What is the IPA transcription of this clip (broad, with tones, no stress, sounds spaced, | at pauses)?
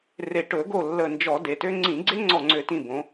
r e˧˩ ʈ ɵ˧˩˧ ɡ o˧˩ lː ə˧˩ n d͡ʒ ɔ˧˩˧ d e˩˧ t ø˦˥ ŋ͡ǀ ĩ˧˩˧ ɡ͡ǀ e˦˥ ŋ͡ǀ ɔ˧˩ ŋ͡ǀ ø˧˩˧ t ĩ˧˩ b õ˩˧